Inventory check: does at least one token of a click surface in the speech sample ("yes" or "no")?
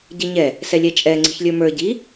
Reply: yes